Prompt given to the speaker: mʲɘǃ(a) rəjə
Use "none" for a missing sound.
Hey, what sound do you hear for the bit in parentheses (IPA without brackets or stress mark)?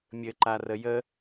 a